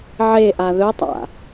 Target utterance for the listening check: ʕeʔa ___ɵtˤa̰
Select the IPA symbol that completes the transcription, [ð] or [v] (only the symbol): ð